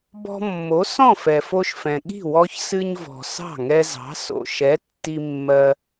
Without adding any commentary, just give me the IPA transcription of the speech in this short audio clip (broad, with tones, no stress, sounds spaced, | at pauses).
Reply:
b ɔ̤˧ mː o˩˥ s ɔ̃˥˩ f ɛ˩ f o˧ ʃ f ɛ̃˩ ɠ i̤˥˩ w ɔ˧ ç s ɨ˧ ɲ v ɔ̤˩ s ɑ̤˥˩ ŋ ɛ˧ z ɑ̤˩˥ s o̰˩ ʃ ɛ˩˥ tː i˧ mː ɜ˧